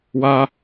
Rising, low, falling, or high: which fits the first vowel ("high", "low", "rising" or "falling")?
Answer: high